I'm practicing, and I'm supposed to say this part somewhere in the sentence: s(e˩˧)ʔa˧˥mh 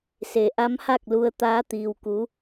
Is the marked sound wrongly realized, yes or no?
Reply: no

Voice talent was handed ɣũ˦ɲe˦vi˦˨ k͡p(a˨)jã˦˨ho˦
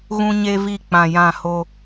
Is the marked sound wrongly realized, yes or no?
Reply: yes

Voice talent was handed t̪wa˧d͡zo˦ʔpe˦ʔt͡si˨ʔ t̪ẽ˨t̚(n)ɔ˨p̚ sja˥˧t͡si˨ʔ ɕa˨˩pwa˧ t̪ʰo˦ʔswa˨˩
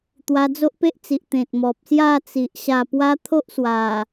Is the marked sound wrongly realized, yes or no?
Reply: yes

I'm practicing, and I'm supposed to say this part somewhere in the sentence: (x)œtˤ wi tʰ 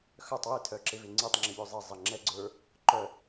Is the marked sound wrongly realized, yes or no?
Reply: no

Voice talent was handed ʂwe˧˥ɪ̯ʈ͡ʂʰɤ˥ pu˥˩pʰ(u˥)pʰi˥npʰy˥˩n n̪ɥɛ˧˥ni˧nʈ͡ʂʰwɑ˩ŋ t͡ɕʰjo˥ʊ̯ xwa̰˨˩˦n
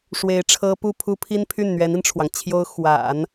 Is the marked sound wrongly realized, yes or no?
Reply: no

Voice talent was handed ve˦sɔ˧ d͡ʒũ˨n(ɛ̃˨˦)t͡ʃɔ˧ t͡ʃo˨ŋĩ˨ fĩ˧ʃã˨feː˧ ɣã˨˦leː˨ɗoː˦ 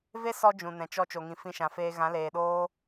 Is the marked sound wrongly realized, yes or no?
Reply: yes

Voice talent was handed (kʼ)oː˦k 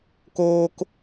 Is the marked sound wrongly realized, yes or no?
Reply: yes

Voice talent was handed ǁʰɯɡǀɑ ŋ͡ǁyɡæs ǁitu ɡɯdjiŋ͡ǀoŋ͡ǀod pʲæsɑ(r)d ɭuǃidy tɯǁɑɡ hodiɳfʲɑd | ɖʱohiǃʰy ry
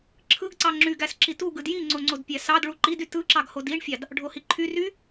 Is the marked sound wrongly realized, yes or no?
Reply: yes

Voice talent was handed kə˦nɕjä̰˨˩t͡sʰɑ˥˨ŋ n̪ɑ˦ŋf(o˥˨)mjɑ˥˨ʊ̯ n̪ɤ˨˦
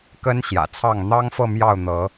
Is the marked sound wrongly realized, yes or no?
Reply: yes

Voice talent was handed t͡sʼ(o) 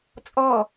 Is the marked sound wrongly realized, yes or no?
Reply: yes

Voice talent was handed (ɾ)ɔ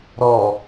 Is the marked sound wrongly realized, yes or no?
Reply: no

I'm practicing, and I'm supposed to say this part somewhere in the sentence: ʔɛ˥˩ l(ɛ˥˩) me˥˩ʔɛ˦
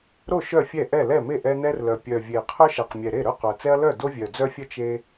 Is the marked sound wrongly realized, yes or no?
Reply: no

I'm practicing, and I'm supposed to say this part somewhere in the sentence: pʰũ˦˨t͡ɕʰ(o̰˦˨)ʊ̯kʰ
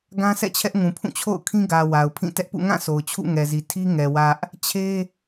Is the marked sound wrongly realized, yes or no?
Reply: no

